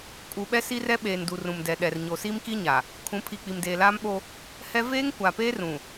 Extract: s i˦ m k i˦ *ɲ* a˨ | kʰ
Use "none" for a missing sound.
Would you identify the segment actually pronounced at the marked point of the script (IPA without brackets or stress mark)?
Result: ɲ